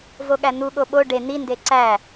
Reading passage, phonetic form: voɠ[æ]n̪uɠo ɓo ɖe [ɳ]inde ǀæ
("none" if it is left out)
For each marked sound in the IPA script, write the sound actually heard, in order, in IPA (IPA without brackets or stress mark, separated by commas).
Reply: æ, n̪